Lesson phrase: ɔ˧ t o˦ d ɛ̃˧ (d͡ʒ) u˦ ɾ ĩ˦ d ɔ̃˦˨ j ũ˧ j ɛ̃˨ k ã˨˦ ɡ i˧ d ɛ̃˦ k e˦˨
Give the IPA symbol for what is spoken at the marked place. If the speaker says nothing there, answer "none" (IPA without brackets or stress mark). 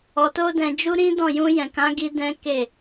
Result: d͡ʒ